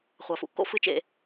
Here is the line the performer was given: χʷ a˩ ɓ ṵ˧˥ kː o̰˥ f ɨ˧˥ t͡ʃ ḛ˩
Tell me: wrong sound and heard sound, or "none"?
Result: ɓ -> f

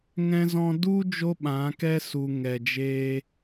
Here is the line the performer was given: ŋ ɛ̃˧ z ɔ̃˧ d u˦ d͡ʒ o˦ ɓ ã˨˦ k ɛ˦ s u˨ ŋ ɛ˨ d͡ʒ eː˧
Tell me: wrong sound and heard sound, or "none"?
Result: none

